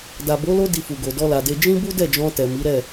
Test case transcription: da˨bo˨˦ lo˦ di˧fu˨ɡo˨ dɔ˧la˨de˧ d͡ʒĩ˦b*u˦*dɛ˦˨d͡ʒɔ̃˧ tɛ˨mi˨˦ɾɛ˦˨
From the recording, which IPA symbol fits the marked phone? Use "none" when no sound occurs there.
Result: u˦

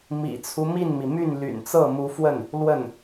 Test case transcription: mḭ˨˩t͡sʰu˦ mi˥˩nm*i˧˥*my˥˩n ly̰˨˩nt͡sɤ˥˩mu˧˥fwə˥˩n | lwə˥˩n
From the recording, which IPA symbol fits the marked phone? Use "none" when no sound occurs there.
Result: i˩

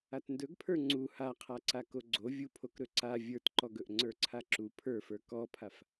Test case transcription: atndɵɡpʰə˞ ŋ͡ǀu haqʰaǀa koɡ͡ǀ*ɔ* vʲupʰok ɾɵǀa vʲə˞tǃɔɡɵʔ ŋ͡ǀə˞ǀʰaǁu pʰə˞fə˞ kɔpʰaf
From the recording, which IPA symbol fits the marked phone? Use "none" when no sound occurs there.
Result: o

